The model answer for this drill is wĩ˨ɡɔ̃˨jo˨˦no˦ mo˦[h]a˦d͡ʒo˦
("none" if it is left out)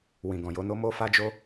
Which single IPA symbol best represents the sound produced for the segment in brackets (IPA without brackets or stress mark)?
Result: f